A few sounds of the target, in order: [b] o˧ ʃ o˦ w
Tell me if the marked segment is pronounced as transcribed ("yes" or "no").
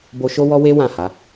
yes